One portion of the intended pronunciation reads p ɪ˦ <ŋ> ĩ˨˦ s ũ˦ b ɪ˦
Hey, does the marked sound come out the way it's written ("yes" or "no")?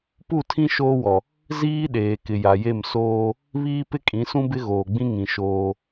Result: no